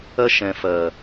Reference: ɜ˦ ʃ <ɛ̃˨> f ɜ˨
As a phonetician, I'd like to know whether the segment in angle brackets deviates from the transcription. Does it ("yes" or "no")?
no